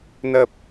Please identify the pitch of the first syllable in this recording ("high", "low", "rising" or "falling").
low